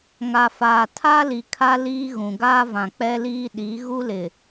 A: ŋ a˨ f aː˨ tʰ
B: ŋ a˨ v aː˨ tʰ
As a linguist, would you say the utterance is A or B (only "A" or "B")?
A